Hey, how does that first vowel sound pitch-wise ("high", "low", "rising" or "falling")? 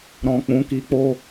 low